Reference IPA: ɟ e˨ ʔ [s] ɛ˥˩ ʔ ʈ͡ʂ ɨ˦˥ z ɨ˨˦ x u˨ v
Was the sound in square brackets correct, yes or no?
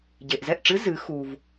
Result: no